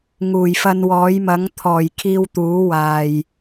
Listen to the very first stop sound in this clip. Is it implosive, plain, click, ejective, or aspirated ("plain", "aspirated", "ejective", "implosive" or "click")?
aspirated